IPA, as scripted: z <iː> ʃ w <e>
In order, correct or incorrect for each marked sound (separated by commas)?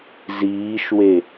correct, correct